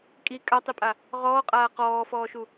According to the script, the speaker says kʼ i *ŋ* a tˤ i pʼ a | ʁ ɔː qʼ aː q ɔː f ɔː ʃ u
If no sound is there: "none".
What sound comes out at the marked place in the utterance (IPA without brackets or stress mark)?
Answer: kʼ